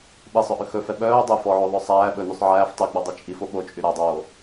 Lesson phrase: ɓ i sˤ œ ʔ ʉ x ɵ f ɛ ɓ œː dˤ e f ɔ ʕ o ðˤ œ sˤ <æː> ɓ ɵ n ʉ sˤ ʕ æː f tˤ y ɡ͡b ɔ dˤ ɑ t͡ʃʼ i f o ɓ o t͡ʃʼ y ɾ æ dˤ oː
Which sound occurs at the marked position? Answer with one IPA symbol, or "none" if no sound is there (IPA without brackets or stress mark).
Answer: æː